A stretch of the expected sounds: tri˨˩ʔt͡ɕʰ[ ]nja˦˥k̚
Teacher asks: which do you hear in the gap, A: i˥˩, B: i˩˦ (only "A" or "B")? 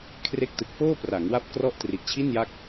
A